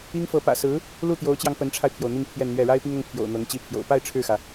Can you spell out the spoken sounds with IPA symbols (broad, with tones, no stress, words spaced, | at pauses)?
i˥ŋfɤ˧˥ pä̰˨˩sɹ̩˧˥ | lu˥˩t̪jo˧˥ʊ̯t͡ɕjɑ˧ŋ pə˧˥nʈ͡ʂʰa˧ɪ̯pʰjo˩ʊ̯ n̪i˥˧ŋpʰjɛ˥˧nn̪ɥɛ˥˩ ɻa˥ɪ̯pi˥ŋʊ˧˥ŋ pʰjo̰˨˩ʊ̯n̪ɤ˧˥ŋ t͡ɕi˥pʰjo̰˨˩ʊ̯ pa˥˧ɪ̯ ʈ͡ʂʰɻ̩˥˩xä˩